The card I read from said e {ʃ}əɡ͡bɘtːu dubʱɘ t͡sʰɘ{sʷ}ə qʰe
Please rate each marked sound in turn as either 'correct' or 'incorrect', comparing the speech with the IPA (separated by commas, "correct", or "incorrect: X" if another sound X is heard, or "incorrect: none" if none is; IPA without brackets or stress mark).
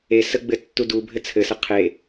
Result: incorrect: s, incorrect: s